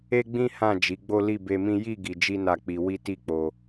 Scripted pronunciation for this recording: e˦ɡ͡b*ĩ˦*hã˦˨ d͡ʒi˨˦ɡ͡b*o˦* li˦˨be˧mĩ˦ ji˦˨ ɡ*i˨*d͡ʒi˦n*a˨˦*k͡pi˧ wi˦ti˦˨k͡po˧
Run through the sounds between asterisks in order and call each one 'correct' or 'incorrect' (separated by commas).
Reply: correct, correct, incorrect, incorrect